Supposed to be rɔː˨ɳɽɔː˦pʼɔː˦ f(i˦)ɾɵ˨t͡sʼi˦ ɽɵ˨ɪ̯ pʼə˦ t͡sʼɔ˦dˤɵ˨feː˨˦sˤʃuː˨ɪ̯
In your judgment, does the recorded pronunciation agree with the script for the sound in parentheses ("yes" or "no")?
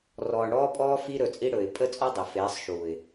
yes